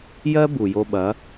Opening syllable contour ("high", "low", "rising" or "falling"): high